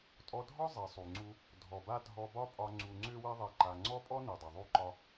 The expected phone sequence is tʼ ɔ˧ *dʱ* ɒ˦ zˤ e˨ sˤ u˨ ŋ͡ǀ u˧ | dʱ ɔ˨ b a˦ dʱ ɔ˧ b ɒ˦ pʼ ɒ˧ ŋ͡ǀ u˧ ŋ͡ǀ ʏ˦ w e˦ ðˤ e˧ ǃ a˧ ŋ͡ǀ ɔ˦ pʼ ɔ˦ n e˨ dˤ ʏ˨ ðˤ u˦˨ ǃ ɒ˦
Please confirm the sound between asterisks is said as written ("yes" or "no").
yes